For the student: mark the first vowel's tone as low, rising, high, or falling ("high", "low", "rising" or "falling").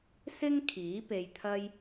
high